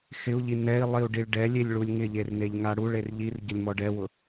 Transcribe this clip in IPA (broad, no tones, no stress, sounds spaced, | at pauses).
x ɪ u̯ ʎ i n ɛ i̯ lˠ i u̯ ɖ i ɭ ɖ ɛ lʲ e lʲ ɭ u lʲ ŋ ɪ ʎ e r n e ʎ ŋ a ɽ u ɭ e r ʎ i r ɟ ʊ lʲ m ɔ ɖ ɛ w ʊ